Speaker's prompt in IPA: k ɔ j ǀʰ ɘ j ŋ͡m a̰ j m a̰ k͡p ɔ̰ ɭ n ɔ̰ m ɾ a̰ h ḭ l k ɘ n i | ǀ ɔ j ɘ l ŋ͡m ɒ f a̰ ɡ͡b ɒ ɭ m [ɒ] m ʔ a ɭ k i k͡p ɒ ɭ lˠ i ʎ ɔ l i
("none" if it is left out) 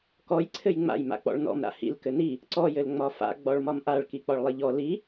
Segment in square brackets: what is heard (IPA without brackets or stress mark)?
ɒ